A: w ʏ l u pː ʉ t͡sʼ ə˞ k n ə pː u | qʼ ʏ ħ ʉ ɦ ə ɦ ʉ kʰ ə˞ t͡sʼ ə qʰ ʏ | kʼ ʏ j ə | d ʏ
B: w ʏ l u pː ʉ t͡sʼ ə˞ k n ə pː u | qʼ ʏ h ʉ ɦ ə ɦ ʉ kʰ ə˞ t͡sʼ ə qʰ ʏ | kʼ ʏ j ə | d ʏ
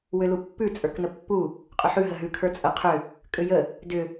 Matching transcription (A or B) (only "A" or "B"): A